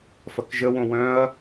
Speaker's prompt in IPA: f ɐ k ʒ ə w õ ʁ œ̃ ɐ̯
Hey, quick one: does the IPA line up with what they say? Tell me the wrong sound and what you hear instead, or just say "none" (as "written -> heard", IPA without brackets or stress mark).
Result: ʁ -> w